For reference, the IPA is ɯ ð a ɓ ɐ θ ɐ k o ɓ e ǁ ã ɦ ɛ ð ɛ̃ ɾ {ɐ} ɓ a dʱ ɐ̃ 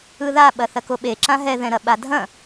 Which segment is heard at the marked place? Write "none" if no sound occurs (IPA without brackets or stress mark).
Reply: ɐ